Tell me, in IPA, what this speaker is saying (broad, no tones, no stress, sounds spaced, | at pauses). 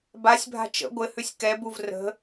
b a sʲ bʱ a̤ t͡ʃ ə̰ ɡʷ ɘ h ʉ sʲ k ɛ b u v r ə̤